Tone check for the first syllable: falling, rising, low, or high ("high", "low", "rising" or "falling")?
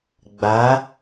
rising